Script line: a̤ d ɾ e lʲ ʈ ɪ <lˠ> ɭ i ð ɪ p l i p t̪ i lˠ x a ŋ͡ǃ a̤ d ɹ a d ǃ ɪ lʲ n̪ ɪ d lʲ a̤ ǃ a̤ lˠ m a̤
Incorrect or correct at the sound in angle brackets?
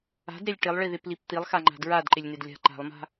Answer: correct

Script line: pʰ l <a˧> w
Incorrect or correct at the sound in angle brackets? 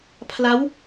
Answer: incorrect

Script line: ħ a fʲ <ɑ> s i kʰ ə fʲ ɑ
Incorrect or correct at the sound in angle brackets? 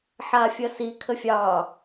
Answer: incorrect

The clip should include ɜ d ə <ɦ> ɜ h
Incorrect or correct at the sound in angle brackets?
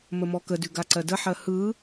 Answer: incorrect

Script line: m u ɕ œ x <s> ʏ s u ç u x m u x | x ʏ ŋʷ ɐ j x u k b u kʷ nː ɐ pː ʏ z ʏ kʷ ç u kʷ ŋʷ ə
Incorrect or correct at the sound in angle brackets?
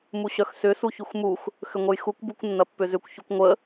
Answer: correct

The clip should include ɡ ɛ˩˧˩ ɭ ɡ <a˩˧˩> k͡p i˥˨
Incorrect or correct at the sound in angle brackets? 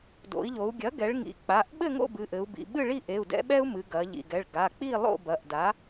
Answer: correct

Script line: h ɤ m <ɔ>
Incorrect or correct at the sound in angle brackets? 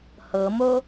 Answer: incorrect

